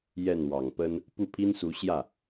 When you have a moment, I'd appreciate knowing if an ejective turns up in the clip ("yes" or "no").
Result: no